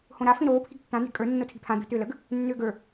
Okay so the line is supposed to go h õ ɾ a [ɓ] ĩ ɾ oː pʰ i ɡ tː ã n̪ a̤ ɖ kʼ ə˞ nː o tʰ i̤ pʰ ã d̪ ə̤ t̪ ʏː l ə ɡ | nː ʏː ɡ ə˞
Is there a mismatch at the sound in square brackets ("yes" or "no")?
yes